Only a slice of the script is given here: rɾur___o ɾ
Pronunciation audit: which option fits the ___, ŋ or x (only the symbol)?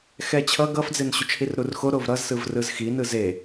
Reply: x